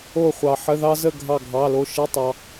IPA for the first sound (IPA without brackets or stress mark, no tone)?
o